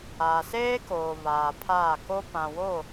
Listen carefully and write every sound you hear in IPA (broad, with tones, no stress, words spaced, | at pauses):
aː˨seː˦koː˨ βaː˨pʰaː˦˨ ko˦ pã˨wo˦˨